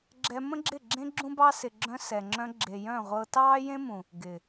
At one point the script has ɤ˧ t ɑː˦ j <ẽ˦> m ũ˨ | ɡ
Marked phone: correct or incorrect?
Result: correct